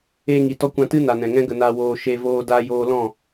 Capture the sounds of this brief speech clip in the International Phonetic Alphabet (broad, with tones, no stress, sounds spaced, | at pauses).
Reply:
eː˧ ŋ i˨ t ɔ˧ kʷ ã˧ t ɨ˦ n a˨ n ɛ̃˨ ŋ ɛ̃˦ ɡ ə˧ n a˧ w oː˧ ʃ e˧ v oː˧ d aː˧ j oː˧ l ɔ̃˦˨